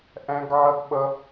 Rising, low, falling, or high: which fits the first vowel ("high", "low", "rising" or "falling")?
high